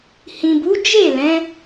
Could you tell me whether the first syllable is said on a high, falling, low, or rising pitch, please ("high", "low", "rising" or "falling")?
low